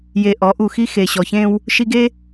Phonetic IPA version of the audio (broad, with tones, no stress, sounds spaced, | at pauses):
j e˨ ʔ ɔ˨˦ ʔ u˨ x i˦ x e˨ ɕ ɔ˨ ç ẽ˦ w | ʃ i˦ ɡ e˦